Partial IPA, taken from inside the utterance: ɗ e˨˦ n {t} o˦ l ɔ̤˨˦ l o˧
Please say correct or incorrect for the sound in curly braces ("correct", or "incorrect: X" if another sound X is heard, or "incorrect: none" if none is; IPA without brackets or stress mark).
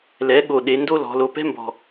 incorrect: d